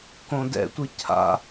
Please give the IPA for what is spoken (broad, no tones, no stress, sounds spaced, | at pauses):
k õ d ɛ̰ tʷ i cʰ a̰